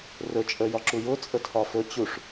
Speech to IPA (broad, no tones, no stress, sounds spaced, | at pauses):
r ɵ t͡ʃʼ ə j ɒ ǁ u j ʊ t͡sʼ ə tʰ ɒ f ɵ t͡ɕ u ʂ